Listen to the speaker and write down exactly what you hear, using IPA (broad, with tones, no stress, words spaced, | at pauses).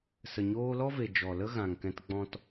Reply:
sə˨ɲoː˧lɔ˦ve˨ d͡ʒɔ˨lə˦ ɣã˨ŋkɛ̃˧t ɡ͡bɔ̃˦t